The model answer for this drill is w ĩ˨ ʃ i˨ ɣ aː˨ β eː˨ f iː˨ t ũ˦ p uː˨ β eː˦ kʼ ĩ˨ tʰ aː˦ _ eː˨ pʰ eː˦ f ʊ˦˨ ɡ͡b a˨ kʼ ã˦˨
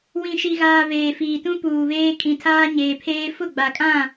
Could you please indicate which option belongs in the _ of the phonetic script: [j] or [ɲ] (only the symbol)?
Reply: ɲ